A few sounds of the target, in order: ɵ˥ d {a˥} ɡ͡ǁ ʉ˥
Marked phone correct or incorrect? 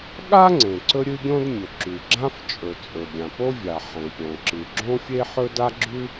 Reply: correct